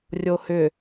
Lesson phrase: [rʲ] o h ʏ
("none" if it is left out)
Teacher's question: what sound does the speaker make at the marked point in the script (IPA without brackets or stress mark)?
rʲ